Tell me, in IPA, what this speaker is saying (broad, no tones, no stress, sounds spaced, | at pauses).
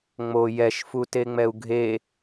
ŋ͡m o j ɛ ʃ f u t e ŋ͡m ɛ u̯ ɡʱ e